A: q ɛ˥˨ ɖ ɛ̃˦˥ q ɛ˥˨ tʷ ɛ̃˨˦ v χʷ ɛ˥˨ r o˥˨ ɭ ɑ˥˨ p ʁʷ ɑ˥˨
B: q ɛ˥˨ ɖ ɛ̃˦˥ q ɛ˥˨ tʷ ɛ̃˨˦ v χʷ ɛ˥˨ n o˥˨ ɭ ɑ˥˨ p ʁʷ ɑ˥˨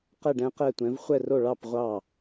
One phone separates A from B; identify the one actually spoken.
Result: A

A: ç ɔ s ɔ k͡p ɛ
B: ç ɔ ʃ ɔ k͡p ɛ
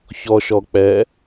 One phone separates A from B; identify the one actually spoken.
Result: B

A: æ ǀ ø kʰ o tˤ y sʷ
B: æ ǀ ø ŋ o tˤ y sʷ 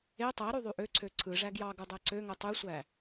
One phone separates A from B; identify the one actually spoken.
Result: B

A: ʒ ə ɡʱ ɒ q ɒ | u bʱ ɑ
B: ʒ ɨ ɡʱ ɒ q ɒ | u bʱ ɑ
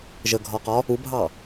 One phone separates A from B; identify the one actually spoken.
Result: A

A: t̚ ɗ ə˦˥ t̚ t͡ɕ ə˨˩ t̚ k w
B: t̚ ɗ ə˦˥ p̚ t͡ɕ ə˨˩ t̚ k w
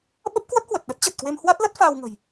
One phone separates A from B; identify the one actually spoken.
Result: A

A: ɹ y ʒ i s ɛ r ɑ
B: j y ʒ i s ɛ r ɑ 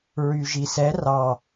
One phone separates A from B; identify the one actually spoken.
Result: A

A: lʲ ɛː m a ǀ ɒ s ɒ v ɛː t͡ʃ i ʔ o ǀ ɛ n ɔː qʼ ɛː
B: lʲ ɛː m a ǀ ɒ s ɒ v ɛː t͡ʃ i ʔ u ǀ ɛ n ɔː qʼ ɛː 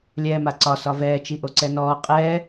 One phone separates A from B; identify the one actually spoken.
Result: A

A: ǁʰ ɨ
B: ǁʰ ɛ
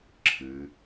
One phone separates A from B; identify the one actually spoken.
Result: A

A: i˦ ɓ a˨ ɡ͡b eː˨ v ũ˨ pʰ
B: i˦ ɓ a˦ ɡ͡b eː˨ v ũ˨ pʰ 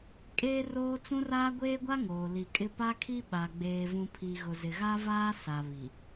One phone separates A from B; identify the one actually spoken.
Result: A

